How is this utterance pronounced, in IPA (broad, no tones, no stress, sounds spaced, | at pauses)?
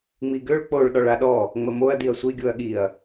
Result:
ŋ͡m i ɡ ø ɭ k͡p o ɭ ɗ ɔ ɭ a ɗ ɔ | ŋ͡m ə m o ɐ̯ d i ɐ̯ sʷ i ɡʲ o ɐ̯ ɠ i ɐ̯